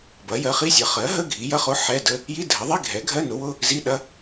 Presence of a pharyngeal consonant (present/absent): present